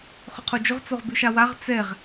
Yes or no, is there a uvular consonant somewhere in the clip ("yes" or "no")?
yes